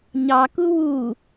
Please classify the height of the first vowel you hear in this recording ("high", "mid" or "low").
low